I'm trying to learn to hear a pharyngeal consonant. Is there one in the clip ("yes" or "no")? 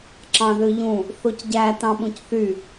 no